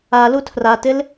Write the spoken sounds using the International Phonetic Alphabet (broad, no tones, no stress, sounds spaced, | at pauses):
a l u tʰ r a t ɪ l